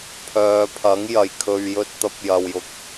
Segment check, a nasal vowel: absent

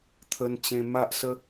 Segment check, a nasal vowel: present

